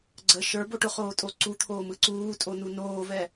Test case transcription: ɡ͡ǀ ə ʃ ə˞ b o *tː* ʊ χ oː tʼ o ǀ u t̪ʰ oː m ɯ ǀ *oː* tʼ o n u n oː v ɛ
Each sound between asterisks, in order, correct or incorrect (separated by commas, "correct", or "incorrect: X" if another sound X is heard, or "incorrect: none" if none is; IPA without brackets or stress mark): incorrect: ʈ, incorrect: uː